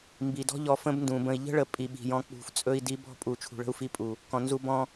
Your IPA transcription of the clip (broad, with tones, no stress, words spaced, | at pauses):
mbi˨dɔ̤˦ ʎɔ˧fə̃˦bndũ˨ bə̃˨i̯ʎə̤˦ɭə˨˦ pʼi˨ɓi̤˨jɔ̃˧ k͡pṳ˨ft͡sʼɵ˧i̯ di˧bɔ̤˦˨pʼu˨ t͡ʃʰṳ˨ɭə̤˧u̯fi˧pʼu˨ | kɔ̃˨nzu˧ bɔ̃˧